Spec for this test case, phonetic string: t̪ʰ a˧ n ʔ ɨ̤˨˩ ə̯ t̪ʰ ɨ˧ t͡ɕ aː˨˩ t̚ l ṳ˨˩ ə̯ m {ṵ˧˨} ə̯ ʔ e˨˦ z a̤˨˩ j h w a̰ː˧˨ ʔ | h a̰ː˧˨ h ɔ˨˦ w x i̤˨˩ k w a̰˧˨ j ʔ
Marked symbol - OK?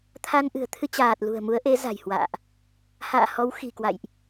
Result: no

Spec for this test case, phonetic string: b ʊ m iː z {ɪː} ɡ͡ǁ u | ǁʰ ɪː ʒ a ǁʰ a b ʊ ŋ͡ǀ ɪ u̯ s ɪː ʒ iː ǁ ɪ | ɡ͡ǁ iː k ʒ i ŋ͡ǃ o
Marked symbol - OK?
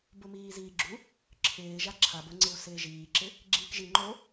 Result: no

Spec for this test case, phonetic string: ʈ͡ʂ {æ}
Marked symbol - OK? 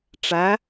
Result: yes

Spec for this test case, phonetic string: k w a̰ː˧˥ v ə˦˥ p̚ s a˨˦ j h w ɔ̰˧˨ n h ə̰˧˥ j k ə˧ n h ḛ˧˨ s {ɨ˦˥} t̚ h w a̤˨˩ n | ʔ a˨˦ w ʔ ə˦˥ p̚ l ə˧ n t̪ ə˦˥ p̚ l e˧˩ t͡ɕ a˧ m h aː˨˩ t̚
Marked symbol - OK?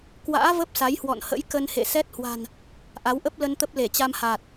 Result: no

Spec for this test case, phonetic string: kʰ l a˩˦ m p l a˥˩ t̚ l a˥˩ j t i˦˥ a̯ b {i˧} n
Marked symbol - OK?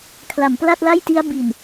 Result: no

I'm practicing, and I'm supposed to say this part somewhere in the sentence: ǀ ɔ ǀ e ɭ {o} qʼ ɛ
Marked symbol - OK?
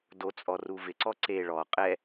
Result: no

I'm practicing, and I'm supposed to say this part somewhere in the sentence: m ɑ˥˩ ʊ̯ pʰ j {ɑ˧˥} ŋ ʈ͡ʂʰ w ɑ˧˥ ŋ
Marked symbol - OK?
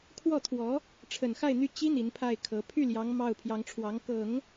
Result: yes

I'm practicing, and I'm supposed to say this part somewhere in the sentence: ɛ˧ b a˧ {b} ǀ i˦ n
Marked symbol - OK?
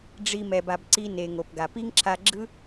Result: yes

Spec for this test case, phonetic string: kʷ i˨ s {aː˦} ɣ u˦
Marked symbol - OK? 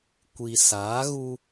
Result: no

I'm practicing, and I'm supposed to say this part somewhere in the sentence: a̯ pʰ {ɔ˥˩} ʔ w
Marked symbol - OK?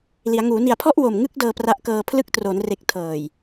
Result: yes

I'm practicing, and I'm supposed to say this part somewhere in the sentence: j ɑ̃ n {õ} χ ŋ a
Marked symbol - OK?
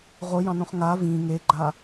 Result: yes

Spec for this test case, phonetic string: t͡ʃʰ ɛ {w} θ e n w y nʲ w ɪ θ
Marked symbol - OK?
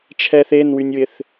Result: no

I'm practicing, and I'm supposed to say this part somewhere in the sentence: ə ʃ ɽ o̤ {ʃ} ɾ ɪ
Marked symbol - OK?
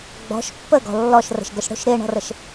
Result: yes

